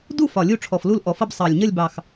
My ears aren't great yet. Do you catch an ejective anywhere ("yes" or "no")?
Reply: no